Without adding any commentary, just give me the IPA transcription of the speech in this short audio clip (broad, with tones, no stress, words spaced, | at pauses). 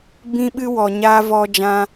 bĩ˦ɓɨ˦ wɔ˧ɲaː˦ vɔ˦d͡ʒã˦